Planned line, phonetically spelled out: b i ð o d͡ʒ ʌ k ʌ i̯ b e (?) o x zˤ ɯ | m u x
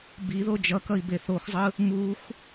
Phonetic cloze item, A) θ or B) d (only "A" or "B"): A